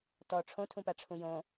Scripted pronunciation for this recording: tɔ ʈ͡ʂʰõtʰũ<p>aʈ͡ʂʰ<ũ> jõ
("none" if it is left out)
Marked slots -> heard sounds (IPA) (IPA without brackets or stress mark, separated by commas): p, ũ